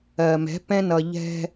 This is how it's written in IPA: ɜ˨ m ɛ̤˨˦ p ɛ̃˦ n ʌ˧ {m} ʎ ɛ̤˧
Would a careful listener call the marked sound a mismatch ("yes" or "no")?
yes